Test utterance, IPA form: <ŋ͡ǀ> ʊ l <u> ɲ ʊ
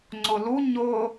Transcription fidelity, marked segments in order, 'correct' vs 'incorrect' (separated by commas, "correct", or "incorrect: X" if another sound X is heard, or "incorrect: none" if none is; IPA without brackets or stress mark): correct, correct